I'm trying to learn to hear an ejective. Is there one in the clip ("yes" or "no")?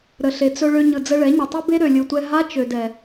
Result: no